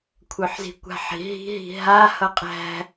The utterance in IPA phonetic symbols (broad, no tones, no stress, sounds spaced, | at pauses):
kʷʰ œ ħ z i̤ kʷ a̤ ħ i̤ ɦ i̤ ɦ i̤ ɦ a h ʌ qʼ æ̤